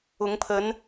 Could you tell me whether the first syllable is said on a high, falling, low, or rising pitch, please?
rising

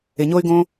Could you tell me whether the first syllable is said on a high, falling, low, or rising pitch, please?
low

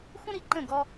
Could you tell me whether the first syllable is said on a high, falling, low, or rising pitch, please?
high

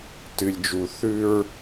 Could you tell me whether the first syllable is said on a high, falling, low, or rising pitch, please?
low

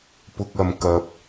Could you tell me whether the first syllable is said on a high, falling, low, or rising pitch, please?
low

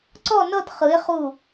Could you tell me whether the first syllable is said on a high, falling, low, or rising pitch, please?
falling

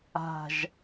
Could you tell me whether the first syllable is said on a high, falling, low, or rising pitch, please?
falling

